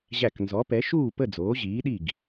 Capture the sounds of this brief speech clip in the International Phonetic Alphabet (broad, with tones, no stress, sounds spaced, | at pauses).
ʑ æ˧˩ k n z ɔ˨˥ p ɛ˨˥ ʃ uː˥˨ p ə˥˨ d͡z oː˨˥ ʑ iː˨˥ ɗ i˥˨ ɡ